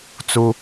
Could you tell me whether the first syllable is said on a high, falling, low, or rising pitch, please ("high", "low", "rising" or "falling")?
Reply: high